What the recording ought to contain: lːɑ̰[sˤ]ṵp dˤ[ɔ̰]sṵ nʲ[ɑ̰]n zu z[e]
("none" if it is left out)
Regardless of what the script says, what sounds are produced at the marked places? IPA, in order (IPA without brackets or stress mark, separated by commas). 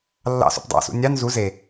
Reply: s, ɑ̰, ɑ, e